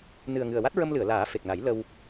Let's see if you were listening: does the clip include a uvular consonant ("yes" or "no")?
no